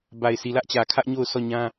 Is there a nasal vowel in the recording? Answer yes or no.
yes